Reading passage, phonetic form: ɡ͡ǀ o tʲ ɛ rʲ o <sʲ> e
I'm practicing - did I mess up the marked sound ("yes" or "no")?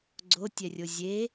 yes